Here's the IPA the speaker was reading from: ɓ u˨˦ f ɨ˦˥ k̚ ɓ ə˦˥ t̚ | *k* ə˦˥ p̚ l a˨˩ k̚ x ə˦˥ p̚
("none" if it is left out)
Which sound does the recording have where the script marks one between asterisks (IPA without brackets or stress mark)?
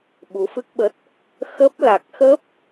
x